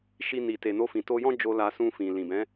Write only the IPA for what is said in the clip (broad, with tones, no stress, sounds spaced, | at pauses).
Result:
ʃ i˧ n i˨ t e˨ n o˧ f ĩ˨ t o˧ j ɔ̃˦ d͡ʒ o˧ l a˧ s ũ˧ f ĩ˨ l ĩ˨ b ɛ̃˨˦